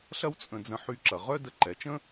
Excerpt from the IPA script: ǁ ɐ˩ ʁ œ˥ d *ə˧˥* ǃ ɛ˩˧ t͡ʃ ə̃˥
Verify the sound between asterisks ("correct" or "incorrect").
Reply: incorrect